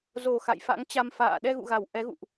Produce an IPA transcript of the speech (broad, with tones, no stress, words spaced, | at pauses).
zo˨˩ xa̰˧˨jfa̰˧˥ŋt͡ɕa˧m fa̰ː˧˨ ɗɛ˧ɣṵ˧˨ɣa˧˩w ʔɛ˨˦ɣṵ˧˨ʔ